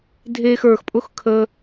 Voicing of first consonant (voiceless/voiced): voiced